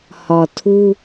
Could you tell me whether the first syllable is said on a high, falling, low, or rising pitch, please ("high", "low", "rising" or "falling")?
low